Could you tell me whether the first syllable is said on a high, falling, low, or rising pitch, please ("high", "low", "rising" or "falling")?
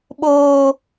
high